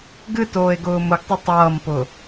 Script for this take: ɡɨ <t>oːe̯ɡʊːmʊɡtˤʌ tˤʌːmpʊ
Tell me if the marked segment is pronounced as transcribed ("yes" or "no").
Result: yes